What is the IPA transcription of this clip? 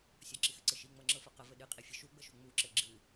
sʲ ɒ ǁ i x ɨ ǀ ɘ ʃ i ŋ͡m ɤ ŋ͡ǁ ɤ f ɤ q ə v ɘ ɗ ɨ qʼ i fʲ ɘ ʃ u ɡ͡b ə ʃ u ŋ͡m u ǁ ɘ ɡ͡ǁ ɨ

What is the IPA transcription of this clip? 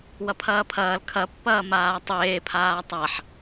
w ɐ pʰ ɐː pʰ ɐː l kʰ ɐ pː ɐː m aː tˤ eː pʰ aː tˤ a ħ

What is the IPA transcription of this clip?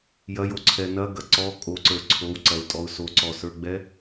j ɐ j o ǀʰ ɛ n ɐ ɡ ɐ ǀ ɔ kʼ o ǀ ə˞ ǀʰ o w ǀ ɐ ʊ̯ tʼ ɔ ʊ̯ s o ǀ ɔ s ə˞ ɡ͡b ɛ

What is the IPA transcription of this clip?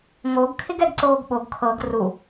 ŋ o ɡ kʰ ɪ ɡ ɛ ɡ ǀ oː ɡ ɓ o ɡ kʰ ɤ ɡ r u

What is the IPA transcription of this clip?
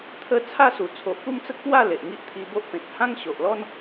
t̪ʰ ə˦ t͡sʰ a˥˧ s u˨˩ t͡sʰ o˨ ʔ p u˥˧ m t͡s ə˦ k̚ p w a˥˧ l e˨ ʔ ŋ i˦ ʔ t̪ʰ i˧ b o˦ ʔ p ẽ˨ t̚ h ã˦ ŋ ɕ o˨ ʔ l ɔ˦ n

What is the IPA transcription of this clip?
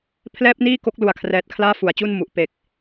pʰ l ɛː˥˩ p̚ n iː˥˩ k o˦˥ k̚ l u˨˩ a̯ kʰ r ɛː˨˩ t̚ kʰ l aː˥˩ f u˩˦ a̯ t͡ɕ u˥˩ n m u˨˩ ʔ p e˨˩ k̚

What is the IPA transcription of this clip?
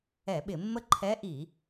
ɛ˧˩˧ ɓ ɪ˧˩˧ mː ə˥˨ ǃʰ ɛ˧˥ ʔ i˧˩˧

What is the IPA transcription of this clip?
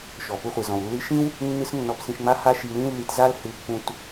ʃ ɔ˩ p u˧ χʷ i˩ z ɔ̃˩ w lː ɨ˧ ʃ ĩ˥ w | nː ɨ˥ s nː ɔ˧ p s ĩ˧ ʃ ŋ͡m a˥ h a˥ ʃ i˧ l ĩ˥ lː i˧ t z a˥ l h ɨ˧ pː ũ˧ t

